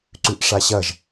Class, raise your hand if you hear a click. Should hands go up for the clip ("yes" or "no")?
yes